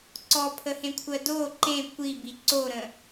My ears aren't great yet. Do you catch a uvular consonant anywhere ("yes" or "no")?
no